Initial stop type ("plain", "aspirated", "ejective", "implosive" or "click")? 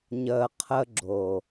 aspirated